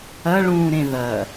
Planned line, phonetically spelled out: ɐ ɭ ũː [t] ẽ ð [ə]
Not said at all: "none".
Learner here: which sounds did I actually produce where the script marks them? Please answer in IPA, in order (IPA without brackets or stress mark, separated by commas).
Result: ɾ, ɐ